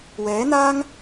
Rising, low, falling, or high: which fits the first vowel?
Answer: rising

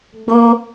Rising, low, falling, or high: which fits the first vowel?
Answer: high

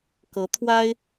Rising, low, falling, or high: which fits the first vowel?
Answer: rising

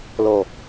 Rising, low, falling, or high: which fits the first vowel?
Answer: low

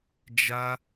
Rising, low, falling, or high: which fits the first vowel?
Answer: high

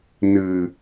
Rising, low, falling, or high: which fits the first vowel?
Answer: low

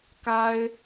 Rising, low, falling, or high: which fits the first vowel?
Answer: high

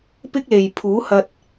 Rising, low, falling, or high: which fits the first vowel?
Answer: high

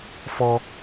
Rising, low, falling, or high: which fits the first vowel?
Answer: high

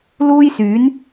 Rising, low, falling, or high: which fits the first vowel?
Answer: high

